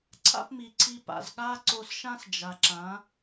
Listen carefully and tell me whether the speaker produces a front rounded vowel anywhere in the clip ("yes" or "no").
no